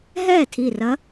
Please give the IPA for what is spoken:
ɦɛː˥˩tʰi˧˩rɐ˧˥

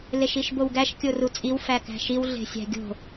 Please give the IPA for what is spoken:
leʃiʃbowɡæʃ kʲorut͡sʼiw fækæ̤ʃiw ɮe̤sʲæ̤ɡʲo̤

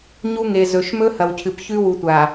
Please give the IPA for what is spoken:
ɲu˦ŋe˨ zɵ˨ʃmɵ˦hɐ˨wcʰɨ˨p çʉ˦wu˨tʷa˨

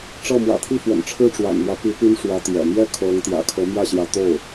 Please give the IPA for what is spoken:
ʈ͡ʂɤ˥˩ mwä̰˨˩t̪ʰi˥˩fwə̰˨˩nʈ͡ʂʰɻ̩˥˩ ʈ͡ʂwa̰˨˩nmwä˦pi˧˥ py˥nʂwä˧˥ t̪jɛ̰˨˩ mjɛ˥˩ kʰɤ˧˥ŋt̪jä̰˨˩ kʰɤ˧˥mjä˥˩ɕjä˧˥ t̪o˥˩ʊ̯

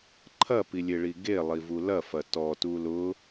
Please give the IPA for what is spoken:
ǃʰɐpilʲeɭi ɡelˠivu lɐfɐ tɔtu lʊ

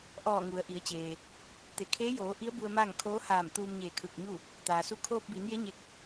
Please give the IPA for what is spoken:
ʔɔː˧˩ ŋu˩˧ə̯ʔi˩˧ə̯t͡ɕeː˩ | t̪e˩kʰeː˧˥joː˩˧ʔi˧˥ə̯ bu˧ə̯maː˥˨ŋ kʰoː˧˥haː˧˩m t̪uː˧mɲeː˧˩ kʰɯː˧˩k̚ɲu˥˨ | t̪aː˩su˧˥ kʰoː˧p̚biː˩˧nje˧˥ ɲe˧˥k̚

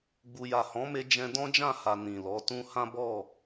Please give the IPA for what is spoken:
ɡ͡bu˨ja˨ hɔ̃˨˦me˧ d͡ʒɛ̃˧dɔ̃˦d͡ʒã˦˨ha˨ nĩ˨lɔ˨˦tũ˦ hã˦bɔ˦˨

